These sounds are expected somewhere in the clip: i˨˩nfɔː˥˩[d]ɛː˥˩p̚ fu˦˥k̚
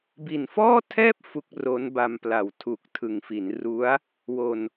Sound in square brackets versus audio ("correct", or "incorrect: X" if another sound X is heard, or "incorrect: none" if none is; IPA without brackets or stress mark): incorrect: tʰ